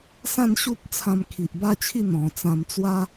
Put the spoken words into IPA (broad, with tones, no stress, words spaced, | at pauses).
sã˥˧nɕu˦p̚ t͡sʰã˧mkʰi˨ʔba˥˧t͡ɕʰi˥˧ n̪ɔ̃˨˩t͡sã˧mt͡swa˦